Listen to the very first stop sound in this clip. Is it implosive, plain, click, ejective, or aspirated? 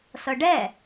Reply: plain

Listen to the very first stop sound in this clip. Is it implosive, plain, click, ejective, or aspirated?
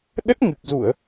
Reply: implosive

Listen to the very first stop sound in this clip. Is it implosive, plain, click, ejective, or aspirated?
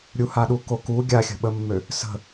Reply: implosive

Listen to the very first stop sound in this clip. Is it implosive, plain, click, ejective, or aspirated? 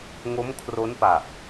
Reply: aspirated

